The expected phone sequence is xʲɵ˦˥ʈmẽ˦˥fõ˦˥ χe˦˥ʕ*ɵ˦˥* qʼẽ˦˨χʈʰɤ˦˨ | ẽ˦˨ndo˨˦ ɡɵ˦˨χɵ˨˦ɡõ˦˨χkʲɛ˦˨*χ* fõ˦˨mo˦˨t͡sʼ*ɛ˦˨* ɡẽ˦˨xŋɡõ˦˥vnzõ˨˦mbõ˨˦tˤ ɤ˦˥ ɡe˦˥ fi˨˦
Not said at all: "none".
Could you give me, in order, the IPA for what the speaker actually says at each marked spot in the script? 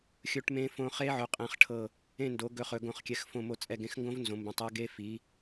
ɵ˨˦, x, ɛ˦˨

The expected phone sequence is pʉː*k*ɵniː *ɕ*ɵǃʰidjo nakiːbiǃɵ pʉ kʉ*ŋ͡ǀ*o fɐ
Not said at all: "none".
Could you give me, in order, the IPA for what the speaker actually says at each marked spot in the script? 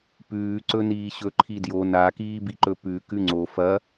ǀ, ɕ, ŋ͡ǀ

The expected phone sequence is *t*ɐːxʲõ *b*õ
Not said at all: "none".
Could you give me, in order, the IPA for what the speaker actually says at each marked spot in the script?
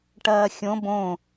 ʈ, b

